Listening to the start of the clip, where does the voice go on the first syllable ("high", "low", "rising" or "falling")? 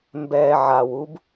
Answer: low